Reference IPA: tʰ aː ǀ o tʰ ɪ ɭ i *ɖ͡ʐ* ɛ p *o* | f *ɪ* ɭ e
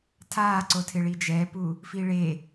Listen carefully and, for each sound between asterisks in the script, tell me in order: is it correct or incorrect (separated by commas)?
incorrect, incorrect, incorrect